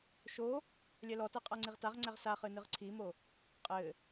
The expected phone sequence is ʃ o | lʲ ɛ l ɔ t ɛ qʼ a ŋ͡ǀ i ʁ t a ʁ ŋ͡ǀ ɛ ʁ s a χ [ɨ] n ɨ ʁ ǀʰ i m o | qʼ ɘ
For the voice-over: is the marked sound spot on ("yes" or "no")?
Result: yes